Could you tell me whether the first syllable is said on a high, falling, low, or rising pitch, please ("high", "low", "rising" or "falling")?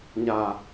low